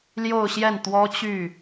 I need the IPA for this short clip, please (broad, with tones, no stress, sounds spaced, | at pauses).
l j o˥˧ ʊ̯ ɕ j ɛ˥˩ n t̪ w ɔ˥ t͡ɕ y˥˩